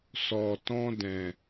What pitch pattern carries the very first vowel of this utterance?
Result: low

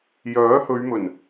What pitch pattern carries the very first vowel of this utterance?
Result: rising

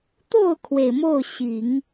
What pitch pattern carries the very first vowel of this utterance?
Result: falling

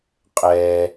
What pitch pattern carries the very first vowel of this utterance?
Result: low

